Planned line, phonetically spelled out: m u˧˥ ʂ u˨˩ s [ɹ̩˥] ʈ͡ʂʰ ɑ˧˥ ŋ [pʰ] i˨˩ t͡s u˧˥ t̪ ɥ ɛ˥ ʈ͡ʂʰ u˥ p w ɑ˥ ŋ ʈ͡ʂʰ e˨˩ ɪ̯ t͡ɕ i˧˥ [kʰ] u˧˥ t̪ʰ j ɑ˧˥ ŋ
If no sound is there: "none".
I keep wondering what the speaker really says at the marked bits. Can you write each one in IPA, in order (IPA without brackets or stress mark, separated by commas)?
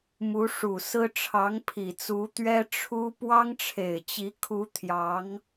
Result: ɹ̩˥, pʰ, kʰ